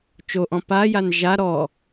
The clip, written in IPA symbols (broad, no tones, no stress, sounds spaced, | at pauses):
t͡ʃ o ʔ ɔ̃ p a j a n ʒ a ɾ ɔ